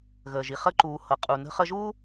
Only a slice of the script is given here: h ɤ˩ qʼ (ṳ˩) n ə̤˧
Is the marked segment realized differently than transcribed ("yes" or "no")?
yes